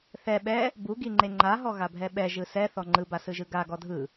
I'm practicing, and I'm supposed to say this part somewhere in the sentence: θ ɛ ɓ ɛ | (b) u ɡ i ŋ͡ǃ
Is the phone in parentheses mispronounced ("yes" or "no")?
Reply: no